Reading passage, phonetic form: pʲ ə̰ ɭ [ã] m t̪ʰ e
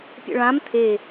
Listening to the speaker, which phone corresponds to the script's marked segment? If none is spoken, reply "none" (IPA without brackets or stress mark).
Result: ã